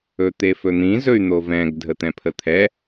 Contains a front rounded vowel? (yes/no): yes